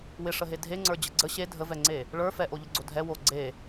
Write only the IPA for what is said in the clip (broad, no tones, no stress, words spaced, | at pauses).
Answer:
wɪʂəɦe dʱeŋ͡ǀə˞d͡ʑə ɡ͡ǀə ɕe dʱəvɛŋ͡ǀe | ɭə˞ fɛʔoʎəɡ͡ǀo dʱɛ wo ɡ͡ǀe